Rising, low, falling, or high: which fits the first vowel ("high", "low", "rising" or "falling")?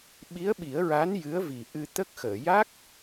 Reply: rising